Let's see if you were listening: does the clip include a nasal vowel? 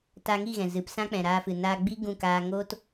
yes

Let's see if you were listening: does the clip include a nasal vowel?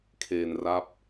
no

